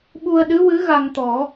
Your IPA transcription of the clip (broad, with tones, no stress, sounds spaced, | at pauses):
ɓ u˧ ə̯ ɗ ɨ˧˥ w ɨ˧˥ ɣ a˧ ŋ t̪ ɔ˨˩˦